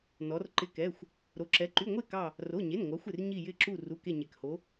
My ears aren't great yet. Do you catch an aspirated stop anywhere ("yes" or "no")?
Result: no